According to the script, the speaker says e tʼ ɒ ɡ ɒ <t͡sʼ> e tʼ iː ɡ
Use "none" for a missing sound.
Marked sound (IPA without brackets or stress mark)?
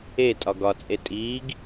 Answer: t͡sʼ